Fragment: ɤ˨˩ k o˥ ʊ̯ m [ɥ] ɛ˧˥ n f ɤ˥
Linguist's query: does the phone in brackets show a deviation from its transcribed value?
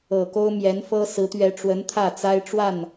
yes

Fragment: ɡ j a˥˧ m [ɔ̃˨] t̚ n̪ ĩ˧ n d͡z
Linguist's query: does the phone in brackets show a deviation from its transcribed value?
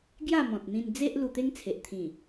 no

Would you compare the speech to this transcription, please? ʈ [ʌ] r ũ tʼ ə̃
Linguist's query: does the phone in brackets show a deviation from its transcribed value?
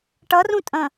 no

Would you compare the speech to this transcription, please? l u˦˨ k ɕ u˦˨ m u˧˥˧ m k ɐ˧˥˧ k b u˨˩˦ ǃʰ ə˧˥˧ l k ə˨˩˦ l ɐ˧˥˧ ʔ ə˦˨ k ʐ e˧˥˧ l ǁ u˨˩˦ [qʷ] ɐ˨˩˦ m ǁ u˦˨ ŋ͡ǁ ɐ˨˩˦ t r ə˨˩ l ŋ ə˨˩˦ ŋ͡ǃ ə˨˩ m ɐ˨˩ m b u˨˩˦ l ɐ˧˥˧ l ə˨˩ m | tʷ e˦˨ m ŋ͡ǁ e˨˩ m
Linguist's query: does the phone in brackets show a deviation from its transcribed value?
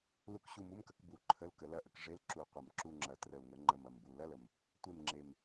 no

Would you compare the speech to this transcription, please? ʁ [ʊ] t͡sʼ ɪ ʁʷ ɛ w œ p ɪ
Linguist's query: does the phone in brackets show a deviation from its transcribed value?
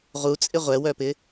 yes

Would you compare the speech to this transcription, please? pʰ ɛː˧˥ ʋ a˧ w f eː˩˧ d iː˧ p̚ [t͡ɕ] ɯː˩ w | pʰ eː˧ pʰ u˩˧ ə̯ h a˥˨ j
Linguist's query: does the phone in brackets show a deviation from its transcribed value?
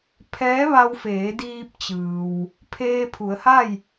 no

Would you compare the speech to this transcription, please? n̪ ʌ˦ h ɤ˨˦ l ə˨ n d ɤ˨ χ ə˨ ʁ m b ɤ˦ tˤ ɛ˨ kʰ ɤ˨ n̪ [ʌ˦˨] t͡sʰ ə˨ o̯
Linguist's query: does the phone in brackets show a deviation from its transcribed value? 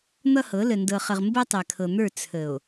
yes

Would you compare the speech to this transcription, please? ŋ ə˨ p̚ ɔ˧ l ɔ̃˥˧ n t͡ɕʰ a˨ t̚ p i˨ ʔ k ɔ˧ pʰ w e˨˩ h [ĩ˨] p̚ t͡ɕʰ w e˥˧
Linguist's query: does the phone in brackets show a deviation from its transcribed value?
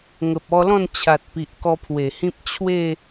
yes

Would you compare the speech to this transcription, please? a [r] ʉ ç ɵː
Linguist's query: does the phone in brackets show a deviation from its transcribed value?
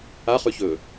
yes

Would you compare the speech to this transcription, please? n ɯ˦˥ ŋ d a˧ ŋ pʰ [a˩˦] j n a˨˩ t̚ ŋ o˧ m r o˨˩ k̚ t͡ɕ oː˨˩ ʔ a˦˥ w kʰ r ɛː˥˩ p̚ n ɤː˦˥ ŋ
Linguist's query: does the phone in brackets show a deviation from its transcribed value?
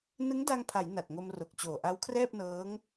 no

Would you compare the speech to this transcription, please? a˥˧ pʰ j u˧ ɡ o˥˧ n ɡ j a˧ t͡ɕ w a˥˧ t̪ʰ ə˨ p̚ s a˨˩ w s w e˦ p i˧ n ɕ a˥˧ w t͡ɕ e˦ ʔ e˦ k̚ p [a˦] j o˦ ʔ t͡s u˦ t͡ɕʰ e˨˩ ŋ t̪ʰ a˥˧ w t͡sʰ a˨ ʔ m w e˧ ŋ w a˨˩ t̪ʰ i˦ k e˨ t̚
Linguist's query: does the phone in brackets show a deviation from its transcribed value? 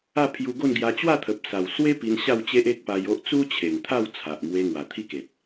yes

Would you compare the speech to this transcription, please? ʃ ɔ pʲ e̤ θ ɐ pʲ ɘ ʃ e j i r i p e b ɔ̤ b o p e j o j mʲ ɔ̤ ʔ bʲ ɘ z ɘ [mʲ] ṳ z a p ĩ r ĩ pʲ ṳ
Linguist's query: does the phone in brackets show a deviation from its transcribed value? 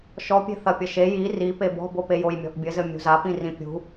no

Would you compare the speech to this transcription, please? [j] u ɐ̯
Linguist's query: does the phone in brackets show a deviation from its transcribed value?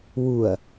yes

